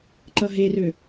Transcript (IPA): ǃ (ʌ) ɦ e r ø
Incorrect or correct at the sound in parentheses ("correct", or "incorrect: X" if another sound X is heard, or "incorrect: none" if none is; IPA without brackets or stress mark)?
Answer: correct